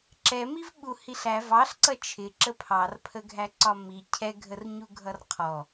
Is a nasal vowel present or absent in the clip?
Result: absent